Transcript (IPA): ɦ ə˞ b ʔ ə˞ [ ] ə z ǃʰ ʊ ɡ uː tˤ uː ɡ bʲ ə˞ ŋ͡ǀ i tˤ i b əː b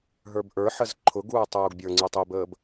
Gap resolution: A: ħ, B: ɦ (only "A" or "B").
A